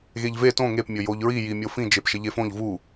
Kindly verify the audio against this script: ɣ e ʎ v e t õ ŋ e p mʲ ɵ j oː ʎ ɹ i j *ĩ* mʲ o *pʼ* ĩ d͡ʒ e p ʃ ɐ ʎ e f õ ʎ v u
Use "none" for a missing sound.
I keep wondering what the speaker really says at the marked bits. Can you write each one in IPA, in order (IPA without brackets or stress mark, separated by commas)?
i, f